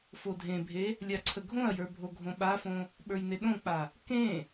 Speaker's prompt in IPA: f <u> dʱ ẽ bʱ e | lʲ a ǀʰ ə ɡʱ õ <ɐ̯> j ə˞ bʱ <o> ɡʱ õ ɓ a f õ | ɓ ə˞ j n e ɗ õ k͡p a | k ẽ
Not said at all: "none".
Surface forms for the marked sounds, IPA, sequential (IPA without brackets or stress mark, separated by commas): o, ɐ̯, o